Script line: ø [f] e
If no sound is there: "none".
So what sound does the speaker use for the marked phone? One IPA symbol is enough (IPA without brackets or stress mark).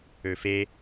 f